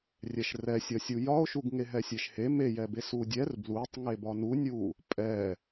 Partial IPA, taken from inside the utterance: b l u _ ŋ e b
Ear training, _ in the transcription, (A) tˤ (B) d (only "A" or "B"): A